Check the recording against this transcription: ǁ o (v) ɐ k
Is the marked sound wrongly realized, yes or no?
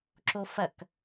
yes